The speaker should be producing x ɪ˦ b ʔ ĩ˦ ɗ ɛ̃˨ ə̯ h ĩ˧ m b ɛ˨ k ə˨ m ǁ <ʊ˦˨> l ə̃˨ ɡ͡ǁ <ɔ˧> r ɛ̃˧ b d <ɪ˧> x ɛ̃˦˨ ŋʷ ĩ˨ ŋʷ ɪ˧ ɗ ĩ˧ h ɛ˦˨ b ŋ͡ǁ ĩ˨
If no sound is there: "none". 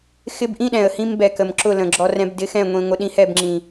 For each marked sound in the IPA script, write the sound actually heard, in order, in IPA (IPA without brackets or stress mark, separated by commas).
ʊ˦˨, ɔ˧, ɪ˧